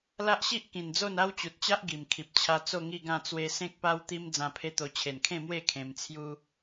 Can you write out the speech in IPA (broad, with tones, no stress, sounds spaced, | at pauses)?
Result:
l a˦ ʔ ɕ i˦ ʔ k ĩ˨˩ n d͡z o˥˧ n a˦ w t͡ɕ u˨ t̚ t͡ɕ a˦ ʔ ɡ i˨˩ m kʰ i˨ p̚ t͡ɕʰ a˦ t͡s o˥˧ ŋ i˥˧ ɡ ã˥˧ t͡s w e˧ s ẽ˦ k̚ p a˦ w t̪ i˦ m d͡z ã˧ pʰ e˦ t̪ o˧ t͡ɕʰ e˨˩ n kʰ ẽ˥˧ m w e˥˧ kʰ ẽ˧ m t͡sʰ j u˦